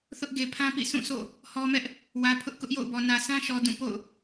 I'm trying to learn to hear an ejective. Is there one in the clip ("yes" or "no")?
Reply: no